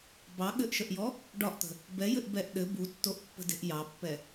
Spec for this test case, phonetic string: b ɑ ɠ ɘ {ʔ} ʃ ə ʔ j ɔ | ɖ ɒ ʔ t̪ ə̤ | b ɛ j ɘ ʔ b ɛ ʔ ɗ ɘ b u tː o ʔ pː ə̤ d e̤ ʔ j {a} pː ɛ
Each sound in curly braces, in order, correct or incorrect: correct, incorrect: ɑ

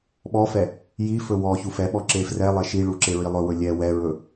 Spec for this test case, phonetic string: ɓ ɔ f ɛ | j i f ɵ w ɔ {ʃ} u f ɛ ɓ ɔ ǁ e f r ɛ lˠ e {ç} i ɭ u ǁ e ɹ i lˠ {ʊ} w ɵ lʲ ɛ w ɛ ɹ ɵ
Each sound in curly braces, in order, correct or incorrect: incorrect: ç, incorrect: ʃ, incorrect: ɵ

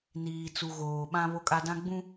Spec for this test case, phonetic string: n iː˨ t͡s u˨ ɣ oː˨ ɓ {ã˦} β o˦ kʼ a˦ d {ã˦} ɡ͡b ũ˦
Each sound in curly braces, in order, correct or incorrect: correct, correct

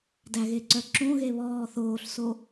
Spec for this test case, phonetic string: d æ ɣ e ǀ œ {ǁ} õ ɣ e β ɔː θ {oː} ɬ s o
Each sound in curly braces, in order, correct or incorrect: correct, correct

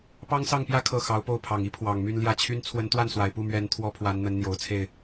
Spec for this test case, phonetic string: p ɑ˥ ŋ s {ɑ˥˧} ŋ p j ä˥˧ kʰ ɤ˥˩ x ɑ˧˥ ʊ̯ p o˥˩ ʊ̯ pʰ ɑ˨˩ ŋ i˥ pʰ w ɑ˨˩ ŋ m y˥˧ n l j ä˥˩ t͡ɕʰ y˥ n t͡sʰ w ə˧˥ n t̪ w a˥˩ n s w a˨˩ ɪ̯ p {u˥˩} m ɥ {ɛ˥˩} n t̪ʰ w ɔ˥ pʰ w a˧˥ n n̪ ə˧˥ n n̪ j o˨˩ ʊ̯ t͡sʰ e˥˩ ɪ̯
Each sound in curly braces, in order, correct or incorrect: correct, correct, incorrect: ɛ˧˥

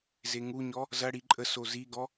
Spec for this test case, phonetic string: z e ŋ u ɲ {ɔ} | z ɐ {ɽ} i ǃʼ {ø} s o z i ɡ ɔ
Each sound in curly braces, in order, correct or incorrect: correct, correct, incorrect: ə

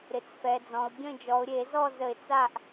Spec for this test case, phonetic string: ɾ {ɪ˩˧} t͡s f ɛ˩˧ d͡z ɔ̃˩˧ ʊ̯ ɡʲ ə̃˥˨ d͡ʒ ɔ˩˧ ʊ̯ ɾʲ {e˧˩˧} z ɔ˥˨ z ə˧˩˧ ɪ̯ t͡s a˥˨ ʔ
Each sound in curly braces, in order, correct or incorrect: correct, correct

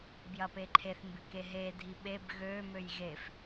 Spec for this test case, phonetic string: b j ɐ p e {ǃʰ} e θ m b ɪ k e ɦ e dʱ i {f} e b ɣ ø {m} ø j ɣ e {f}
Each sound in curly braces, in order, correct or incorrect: correct, incorrect: ɓ, correct, correct

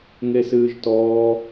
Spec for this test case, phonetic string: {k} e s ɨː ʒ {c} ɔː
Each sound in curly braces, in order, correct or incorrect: incorrect: ŋ, incorrect: t

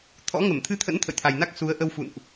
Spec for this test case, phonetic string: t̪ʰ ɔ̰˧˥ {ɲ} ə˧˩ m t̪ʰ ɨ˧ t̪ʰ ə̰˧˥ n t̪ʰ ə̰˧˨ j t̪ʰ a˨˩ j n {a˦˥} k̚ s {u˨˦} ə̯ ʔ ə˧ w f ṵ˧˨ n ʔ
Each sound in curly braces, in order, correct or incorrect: incorrect: ŋ, correct, correct

